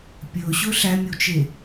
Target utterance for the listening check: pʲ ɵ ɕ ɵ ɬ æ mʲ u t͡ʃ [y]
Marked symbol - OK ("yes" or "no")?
no